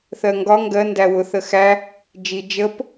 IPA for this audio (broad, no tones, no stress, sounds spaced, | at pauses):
θ ɜ ŋ ɡ ɒ ŋ ɡ ɜ n d æ w ʊ θ ə x æ | d͡ʒ i d͡ʒ ə p